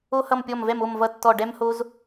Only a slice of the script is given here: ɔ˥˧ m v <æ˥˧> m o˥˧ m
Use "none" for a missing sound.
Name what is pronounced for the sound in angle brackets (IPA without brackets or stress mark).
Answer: ɛ˥˧